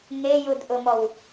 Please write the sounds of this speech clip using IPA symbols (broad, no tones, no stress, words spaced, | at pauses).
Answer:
ŋejudʔʊmɔw